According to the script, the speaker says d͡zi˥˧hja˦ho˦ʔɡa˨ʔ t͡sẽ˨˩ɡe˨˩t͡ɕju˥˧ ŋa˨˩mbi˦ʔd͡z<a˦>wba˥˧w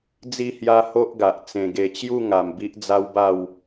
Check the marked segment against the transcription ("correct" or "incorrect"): correct